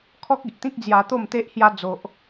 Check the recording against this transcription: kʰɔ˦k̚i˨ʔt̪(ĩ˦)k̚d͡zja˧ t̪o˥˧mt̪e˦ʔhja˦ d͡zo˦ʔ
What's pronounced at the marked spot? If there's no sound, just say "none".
ĩ˦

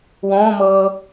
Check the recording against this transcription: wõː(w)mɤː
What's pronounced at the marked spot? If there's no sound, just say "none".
none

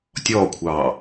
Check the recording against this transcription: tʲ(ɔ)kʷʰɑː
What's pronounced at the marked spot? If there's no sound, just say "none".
ɔː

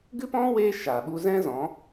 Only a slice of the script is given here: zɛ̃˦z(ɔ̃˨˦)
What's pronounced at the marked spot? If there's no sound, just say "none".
ɔ̃˨˦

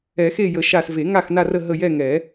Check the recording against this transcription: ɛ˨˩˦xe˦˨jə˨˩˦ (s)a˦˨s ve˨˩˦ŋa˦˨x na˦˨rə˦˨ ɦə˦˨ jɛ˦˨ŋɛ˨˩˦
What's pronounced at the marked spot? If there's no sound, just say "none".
ʃ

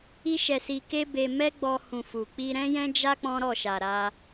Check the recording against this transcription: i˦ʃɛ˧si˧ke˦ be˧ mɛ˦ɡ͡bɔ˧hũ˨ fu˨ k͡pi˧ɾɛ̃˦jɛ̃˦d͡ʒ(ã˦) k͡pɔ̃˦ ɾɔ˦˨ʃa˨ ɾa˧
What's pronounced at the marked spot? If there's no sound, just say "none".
a˦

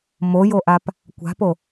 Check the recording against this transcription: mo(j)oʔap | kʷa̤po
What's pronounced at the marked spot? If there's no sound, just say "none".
j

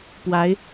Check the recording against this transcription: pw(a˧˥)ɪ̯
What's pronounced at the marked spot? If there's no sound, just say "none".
a˧˥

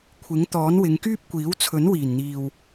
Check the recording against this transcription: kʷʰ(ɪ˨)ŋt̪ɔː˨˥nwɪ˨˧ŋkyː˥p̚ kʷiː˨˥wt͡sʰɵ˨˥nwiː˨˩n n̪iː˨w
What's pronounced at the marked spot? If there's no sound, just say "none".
ɪ˨˥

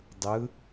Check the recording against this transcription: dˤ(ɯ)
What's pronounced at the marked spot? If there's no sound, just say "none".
ɯ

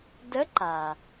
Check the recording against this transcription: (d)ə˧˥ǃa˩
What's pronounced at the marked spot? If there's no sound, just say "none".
d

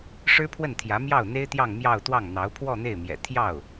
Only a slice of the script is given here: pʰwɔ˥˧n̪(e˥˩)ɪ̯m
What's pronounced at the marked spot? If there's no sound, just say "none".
e˥˩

